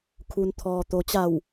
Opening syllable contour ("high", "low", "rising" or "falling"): low